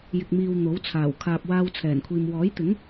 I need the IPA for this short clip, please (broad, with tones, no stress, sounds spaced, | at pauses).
j ɪ˨ k̚ m iː˨ w n̪ o˨˥ w t͡sʰ aː˨˩ w kʰ aː˨ p̚ w aː˧ w t͡sʰ ɛː˨˩ n kʷʰ iː˨ m w ɔː˨˥ j t̪ ɪ˨˥ ŋ